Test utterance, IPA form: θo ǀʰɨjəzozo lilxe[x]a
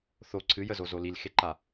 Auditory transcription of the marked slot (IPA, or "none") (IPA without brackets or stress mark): ǃ